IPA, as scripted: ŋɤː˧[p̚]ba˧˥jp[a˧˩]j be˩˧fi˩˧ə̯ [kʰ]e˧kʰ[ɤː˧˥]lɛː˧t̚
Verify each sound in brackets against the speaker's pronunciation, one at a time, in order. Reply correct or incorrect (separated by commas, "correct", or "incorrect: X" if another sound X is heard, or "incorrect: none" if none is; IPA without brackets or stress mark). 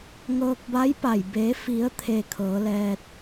incorrect: k̚, correct, incorrect: t̪ʰ, incorrect: ɤː˩˧